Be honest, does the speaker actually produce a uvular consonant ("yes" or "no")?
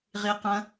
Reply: yes